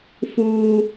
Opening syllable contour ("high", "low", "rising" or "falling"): high